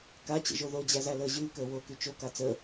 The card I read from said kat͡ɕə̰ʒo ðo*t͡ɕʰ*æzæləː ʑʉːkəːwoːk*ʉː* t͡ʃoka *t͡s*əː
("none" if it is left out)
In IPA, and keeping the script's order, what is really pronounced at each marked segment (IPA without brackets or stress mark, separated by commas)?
d͡ʑ, ʉ, t͡s